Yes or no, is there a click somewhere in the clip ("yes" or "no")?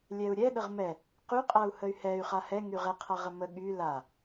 no